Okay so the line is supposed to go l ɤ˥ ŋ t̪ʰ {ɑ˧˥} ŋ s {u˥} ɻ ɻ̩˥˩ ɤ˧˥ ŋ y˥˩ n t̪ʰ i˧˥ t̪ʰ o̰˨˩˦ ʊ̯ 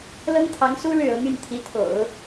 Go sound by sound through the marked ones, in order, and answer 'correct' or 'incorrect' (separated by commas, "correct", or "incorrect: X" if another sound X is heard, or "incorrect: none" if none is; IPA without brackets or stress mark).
correct, correct